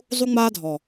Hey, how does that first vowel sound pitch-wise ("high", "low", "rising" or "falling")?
high